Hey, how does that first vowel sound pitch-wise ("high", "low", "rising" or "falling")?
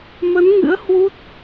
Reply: rising